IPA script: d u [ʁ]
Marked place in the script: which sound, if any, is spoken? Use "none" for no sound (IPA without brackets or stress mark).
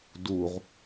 ʁ